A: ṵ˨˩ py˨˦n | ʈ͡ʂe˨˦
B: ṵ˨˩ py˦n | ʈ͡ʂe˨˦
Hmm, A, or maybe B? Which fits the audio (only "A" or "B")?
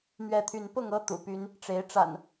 B